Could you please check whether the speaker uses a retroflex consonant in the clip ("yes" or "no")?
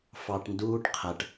yes